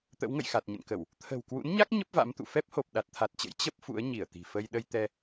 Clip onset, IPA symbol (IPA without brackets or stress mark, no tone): t̪